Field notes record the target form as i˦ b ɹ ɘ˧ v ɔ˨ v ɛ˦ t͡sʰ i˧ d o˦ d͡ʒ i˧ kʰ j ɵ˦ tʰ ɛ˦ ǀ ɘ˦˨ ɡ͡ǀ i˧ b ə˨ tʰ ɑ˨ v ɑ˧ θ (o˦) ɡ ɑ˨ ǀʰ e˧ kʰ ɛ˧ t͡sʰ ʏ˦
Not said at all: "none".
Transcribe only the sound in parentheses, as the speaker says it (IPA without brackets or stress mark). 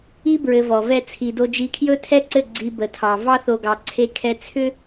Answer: o˨